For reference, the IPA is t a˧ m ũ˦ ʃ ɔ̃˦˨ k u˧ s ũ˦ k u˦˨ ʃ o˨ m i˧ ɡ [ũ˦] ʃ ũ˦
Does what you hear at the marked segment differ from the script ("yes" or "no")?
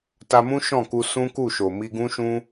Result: no